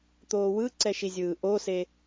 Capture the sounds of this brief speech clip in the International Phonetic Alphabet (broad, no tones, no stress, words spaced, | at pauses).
t̪oːwɯǀɛ ʃizʲɯːʔose